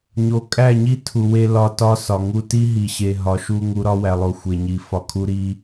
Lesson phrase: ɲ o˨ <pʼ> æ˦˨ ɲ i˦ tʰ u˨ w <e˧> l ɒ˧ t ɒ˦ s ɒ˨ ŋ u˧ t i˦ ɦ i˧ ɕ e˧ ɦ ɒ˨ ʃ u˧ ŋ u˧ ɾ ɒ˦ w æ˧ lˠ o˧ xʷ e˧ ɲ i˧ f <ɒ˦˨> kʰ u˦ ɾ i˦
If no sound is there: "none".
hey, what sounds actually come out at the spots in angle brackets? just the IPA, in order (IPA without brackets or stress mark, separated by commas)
kʼ, e˧, ɒ˦